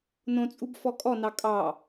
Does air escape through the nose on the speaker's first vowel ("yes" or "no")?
yes